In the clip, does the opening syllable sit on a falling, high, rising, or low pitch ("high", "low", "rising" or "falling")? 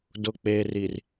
low